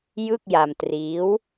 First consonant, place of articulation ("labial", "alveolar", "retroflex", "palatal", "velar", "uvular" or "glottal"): palatal